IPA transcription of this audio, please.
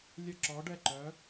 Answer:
lʲə˥˧ ǁɔ˧˥ɖɛ˥˧ǃœ˧˥

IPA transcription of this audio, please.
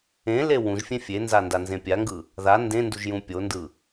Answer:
ẽle wũʒfʲẽ fʲenza ndanzẽpʲaŋɡɯ | ða ndẽnduʒ jũpʲondɯ

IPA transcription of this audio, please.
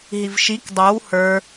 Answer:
ɦivʃik dˤow hə˞

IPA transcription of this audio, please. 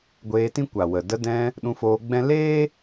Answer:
ɡʷeː˧tĩ˦kʷa˨wə˨ də˧dɛ̃˧ | ɗũ˧foː˧ɡ͡bɛ̃˦ leː˦

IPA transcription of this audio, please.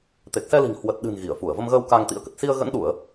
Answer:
t̪e˨˩k̚sɛ˧li̤˨˩ŋhwə˨˩t̚ ɗɨ̤˨˩n ɣi˧˩ə̯fu˧˩ə̯və˧mɣəː˧w ka˧ŋt̪ḭ˧˥ə̯kə˨˩t̚ si˧ə̯ɣə̰˧˥nɗu˧˩˨ə̯

